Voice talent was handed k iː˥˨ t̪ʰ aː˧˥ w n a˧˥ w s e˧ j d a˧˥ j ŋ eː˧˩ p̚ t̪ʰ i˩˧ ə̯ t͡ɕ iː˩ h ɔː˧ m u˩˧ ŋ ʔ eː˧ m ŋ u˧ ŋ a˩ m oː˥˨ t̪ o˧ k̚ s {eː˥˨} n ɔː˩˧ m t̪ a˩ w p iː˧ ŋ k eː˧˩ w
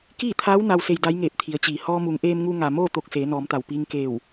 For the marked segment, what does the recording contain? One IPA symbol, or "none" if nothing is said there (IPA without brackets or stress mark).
eː˩˧